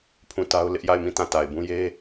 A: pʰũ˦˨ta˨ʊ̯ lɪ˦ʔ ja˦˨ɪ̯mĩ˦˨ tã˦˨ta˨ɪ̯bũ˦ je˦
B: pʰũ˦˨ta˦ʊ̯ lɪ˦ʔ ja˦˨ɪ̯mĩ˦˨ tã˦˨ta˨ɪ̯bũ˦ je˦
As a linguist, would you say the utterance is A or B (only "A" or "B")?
B